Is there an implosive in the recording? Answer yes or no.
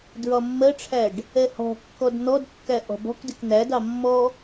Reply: no